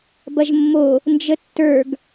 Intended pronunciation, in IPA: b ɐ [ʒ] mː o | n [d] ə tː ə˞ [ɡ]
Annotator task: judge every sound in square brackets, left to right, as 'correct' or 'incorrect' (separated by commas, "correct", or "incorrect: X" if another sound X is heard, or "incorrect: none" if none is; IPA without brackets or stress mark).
correct, incorrect: d͡ʒ, correct